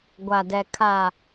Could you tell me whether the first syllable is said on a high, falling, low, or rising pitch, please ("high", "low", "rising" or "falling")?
low